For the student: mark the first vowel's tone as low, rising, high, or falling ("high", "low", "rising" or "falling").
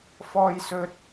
high